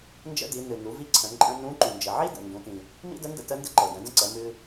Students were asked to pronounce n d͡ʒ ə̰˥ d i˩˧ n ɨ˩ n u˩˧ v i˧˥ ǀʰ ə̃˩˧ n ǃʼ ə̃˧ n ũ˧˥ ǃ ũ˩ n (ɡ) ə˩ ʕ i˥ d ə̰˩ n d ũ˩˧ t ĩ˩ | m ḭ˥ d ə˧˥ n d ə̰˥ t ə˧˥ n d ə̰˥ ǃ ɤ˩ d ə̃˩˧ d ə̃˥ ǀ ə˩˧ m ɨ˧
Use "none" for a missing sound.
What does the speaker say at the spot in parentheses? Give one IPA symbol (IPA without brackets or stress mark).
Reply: d͡ʒ